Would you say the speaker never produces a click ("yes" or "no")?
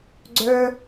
no